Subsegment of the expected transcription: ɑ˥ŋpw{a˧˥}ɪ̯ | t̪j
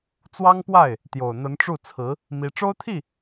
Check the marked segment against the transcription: incorrect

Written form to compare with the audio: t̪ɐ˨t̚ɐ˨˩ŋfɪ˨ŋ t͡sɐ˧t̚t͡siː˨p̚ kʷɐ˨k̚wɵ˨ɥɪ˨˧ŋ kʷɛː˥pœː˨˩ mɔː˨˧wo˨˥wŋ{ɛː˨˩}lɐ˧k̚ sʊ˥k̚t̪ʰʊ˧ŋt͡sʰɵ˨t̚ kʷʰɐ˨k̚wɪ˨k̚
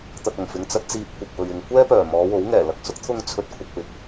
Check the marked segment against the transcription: correct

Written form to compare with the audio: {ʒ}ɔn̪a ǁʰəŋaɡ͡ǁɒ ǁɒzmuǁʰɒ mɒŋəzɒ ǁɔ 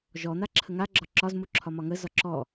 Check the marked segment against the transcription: correct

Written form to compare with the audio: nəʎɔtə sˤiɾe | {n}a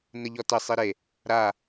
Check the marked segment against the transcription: incorrect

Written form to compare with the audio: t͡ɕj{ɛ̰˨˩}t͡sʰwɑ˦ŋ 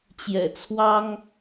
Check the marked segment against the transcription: correct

